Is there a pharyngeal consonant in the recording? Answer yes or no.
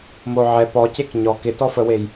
yes